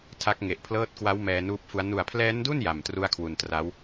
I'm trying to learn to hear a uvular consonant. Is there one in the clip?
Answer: no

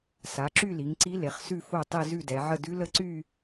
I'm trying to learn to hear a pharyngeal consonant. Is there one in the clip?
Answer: yes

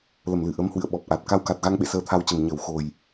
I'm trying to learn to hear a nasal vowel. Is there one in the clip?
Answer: no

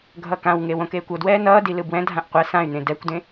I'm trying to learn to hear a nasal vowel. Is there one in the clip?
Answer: yes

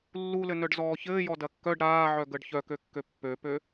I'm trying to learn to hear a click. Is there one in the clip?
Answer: no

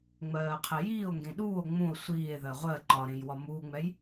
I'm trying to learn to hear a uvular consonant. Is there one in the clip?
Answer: yes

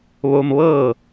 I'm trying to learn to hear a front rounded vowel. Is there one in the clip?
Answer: no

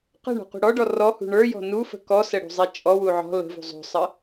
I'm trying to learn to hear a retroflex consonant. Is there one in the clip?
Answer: yes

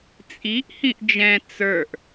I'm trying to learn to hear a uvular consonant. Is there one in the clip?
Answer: no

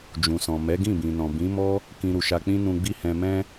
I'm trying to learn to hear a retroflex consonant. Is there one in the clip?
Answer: no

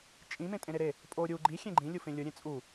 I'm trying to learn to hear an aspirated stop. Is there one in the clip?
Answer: no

